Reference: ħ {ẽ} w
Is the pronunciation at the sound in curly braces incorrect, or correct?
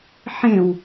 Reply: correct